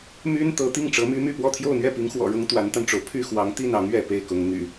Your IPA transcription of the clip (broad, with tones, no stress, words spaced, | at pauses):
my˥n t̪ɤ˧˥t̪i˥˩ŋ ʈ͡ʂɤ˧˥my˥my˥˧pwɔ˥˧ t̪ʰjo˥˧ʊ̯n̪ɥɛ˥˩pi˧˥ŋxwɔ̰˨˩ ɻʊ˥ŋt̪wa˧˥nt̪a˧nʈ͡ʂo˩ʊ̯ pʰy˥˩xwɑ˧˥ŋt̪i˥˩nɑ˧˥ŋ ɥɛ˥˧ pe˥˩ɪ̯kʊ˧˥ŋn̪y̰˨˩˦